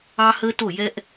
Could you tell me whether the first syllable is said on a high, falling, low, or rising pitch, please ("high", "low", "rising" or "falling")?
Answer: high